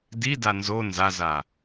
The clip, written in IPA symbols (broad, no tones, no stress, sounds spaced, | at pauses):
d i d a n z o n z a z a